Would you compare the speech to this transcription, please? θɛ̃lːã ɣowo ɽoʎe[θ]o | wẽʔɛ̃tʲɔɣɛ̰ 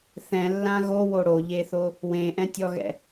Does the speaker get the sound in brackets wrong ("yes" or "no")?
no